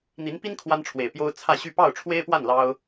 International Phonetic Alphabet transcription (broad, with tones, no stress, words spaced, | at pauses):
n̪i˧˥npi˥n kʰwa˥nʈ͡ʂʰwe˨˩ɪ̯pjo˥ʊ̯ t͡sʰä˥˧ɕy˥˧ pɑ˥˩ʊ̯ʈ͡ʂʰwe˥ɪ̯pwa˥˩n lɑ˥ʊ̯